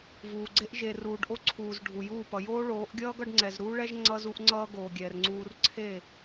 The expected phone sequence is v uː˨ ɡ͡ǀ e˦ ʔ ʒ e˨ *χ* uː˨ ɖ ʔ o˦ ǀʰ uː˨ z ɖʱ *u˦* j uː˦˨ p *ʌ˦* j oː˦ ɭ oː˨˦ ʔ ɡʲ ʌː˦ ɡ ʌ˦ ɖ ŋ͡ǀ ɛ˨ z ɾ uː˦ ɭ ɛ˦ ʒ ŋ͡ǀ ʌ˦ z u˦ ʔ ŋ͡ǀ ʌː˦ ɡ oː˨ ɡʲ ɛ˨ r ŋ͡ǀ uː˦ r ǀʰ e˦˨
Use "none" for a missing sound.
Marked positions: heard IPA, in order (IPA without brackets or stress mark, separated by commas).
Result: r, u˨, ʌ˨